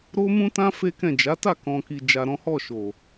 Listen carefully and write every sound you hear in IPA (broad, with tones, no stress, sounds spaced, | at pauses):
ɾ o˦ m ũ˦ t ã˦ f e˦ k ɛ̃˦˨ d͡ʒ a˨˦ t a˦˨ k ɔ̃˧ k i˧ d͡ʒ a˧ ɾ ɔ̃˦ h ɔ˦˨ ʃ o˨